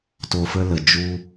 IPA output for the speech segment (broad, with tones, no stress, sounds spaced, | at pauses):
t o˨ f ə˧ l ə˨ d͡ʒ u˧